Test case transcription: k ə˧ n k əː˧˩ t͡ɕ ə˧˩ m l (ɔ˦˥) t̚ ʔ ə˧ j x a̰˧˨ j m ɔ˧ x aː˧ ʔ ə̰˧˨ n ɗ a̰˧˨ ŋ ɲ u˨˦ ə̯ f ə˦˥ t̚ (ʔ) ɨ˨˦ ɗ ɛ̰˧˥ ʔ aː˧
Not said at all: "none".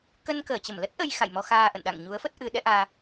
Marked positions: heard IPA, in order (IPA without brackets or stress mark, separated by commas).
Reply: ə˦˥, ʔ